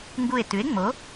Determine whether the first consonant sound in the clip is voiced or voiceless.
voiced